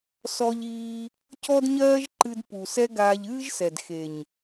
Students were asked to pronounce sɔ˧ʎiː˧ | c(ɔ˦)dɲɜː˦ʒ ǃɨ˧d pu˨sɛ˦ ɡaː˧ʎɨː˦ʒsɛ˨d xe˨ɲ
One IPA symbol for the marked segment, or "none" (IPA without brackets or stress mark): ɔ˦